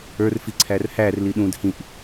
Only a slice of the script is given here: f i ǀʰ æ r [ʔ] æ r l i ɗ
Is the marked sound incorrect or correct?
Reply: incorrect